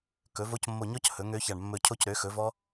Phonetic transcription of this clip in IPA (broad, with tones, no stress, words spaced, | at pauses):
kɵ˩˥vo˦˥c mːo˧˩ɲɔ˦˥c hɵ˩˥ŋø˦˥ça˧˩ɳ mːɵ˧˩cʰo˦˥cɾø˩˥ xɵ˩˥vɔ˦˥